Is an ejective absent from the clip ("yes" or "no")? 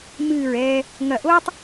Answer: yes